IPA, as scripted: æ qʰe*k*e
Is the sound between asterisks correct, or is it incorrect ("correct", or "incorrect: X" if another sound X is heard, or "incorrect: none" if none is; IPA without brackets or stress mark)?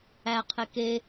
correct